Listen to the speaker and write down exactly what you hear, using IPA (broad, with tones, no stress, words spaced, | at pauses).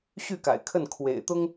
ɕy˥˨ka̰˨˩ɪ̯ kʰə˥˨nkʰwḛ˨˩ɪ̯t̪ʊ˦ŋ